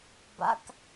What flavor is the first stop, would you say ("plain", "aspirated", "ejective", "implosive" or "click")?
plain